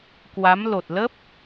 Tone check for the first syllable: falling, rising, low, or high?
rising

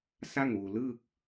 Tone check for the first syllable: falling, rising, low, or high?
falling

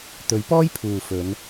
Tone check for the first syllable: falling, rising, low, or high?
rising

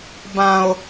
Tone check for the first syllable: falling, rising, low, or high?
low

